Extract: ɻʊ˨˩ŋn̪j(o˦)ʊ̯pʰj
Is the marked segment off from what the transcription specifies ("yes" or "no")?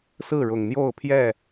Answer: yes